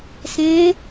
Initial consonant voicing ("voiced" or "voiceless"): voiceless